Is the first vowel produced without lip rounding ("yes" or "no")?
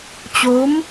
no